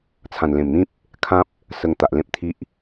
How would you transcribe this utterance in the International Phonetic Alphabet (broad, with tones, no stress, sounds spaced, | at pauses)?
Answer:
t͡sʰ ã˨˩ n l ẽ˨˩ m n̪ ĩ˦ p̚ | kʰ ã˦ p̚ | s ə˧ ŋ t̪ a˨ ʔ l ẽ˦ p̚ t̪ʰ i˦ ʔ